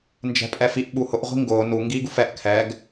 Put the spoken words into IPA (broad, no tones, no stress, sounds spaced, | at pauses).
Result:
n d͡ʒ ɛ̤ pʼ ɛ f i ʔ ɓ u h ʊ ʔ ʁʷ i̤ ŋ ɡ ʊː n u ŋ ɡ iː ɡ u f ɛ ʔ kʰ ɛ ɡ